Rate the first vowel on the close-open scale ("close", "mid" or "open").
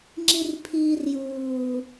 close